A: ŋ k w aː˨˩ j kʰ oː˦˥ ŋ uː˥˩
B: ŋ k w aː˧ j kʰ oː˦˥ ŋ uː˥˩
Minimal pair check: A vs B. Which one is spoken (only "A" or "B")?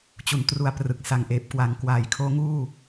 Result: A